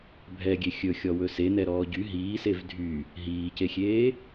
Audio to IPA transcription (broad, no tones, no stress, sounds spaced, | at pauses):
bʱ ɛ ɡʲ e xʲ ɵ xʲ ɔ w ɵ s e n ɛ ɾ ɔː ɟ y ɦ iː s e v dʱ y | ɦ iː c e xʲ eː